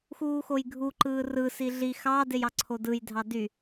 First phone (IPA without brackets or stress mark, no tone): x